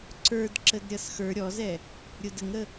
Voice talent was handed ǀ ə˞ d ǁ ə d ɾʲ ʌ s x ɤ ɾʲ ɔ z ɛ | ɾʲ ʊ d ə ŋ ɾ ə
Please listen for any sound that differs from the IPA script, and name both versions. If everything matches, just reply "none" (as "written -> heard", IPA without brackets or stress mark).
ɤ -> ə˞